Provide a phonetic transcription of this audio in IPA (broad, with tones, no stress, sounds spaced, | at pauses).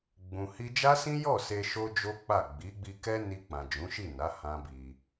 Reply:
ɡ͡b ũ˨ h i˧ d͡ʒ a˦ s ĩ˦ j ɔ˦˨ s e˧ ʃ o˦ d͡ʒ o˦ k͡p a˦˨ ɡ͡b i˨˦ ɡ͡b i˧ k ɛ˦ n i˧ k͡p ã˨ d͡ʒ ũ˨˦ ʃ i˦˨ n a˨˦ h ã˦ b i˧